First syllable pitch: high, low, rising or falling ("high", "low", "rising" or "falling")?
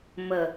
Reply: low